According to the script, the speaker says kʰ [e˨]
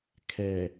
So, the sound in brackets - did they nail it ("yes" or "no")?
no